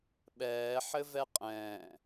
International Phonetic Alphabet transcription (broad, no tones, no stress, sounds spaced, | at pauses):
ɓ ɛː ħ ɘ v ɛ qʼ ɛ̃ː